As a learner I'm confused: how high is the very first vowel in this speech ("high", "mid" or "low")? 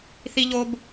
high